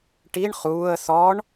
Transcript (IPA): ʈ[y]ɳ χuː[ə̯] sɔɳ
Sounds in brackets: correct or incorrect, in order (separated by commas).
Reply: incorrect, correct